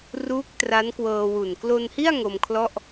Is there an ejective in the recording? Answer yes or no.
no